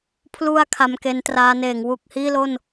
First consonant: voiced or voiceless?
voiceless